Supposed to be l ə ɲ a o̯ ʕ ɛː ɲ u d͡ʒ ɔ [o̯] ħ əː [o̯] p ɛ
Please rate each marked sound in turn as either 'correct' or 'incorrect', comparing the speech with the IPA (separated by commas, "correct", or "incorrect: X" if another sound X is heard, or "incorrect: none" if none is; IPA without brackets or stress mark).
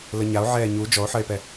correct, incorrect: e̯